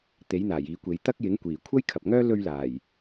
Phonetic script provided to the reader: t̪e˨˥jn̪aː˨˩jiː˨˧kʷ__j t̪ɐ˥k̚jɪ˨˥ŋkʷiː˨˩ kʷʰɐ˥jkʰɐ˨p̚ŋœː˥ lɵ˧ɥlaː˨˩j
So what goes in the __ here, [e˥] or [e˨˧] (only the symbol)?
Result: e˨˧